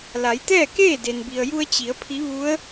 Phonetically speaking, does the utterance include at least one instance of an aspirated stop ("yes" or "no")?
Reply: yes